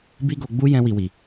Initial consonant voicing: voiced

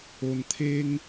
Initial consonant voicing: voiced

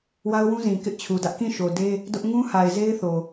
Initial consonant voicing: voiced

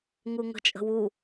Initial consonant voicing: voiced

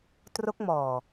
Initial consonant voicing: voiceless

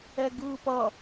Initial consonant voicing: voiced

